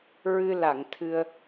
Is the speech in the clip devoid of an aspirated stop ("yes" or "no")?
no